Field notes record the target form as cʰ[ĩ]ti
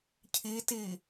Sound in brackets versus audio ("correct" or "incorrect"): incorrect